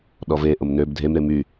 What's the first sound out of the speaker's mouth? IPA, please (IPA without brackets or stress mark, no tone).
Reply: ɗ